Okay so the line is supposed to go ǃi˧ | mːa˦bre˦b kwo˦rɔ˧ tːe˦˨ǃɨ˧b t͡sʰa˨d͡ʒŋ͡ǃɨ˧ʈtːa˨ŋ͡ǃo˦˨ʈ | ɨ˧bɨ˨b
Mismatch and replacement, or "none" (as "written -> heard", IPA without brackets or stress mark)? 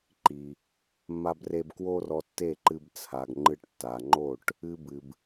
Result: d͡ʒ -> ɡ